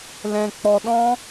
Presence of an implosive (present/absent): present